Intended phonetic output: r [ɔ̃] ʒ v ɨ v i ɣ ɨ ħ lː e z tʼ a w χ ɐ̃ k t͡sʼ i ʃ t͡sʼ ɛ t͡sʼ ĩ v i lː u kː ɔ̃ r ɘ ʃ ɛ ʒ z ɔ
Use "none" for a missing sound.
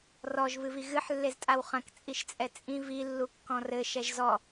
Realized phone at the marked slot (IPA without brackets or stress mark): ɔ